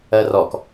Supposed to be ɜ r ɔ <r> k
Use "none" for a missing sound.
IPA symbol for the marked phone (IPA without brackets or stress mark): none